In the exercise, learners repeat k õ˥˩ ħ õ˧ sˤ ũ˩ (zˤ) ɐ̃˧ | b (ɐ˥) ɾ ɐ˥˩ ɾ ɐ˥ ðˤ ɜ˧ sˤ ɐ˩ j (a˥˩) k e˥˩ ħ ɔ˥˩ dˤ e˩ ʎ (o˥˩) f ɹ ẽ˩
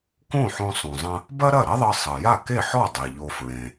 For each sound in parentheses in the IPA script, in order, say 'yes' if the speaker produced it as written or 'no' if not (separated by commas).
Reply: yes, yes, yes, no